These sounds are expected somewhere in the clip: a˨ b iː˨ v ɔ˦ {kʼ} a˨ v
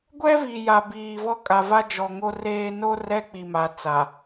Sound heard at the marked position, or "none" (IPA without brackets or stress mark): kʼ